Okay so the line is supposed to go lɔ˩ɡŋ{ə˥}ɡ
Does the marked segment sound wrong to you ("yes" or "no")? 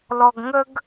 yes